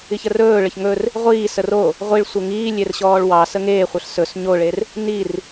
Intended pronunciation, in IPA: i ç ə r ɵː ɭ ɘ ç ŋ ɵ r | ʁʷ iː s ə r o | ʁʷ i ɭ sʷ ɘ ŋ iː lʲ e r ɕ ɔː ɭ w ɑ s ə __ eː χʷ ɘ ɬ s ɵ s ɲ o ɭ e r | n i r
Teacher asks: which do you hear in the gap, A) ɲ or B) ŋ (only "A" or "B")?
B